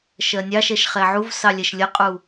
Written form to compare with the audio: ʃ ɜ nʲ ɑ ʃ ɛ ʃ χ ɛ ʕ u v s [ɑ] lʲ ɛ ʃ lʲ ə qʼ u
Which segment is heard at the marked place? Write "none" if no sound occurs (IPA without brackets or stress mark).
ɑ